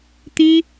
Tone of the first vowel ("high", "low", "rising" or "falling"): high